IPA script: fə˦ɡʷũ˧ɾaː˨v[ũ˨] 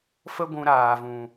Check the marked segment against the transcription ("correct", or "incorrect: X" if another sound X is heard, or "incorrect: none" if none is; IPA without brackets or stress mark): correct